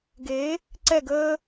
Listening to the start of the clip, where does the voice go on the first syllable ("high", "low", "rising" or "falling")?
rising